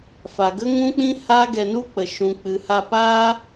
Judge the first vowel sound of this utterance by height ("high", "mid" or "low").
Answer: low